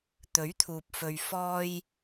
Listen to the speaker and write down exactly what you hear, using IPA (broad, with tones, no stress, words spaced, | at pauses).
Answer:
t̪ɵ˨˥ɥt̪ʰuː˨p̚fɵ˨ɥ fɔː˧j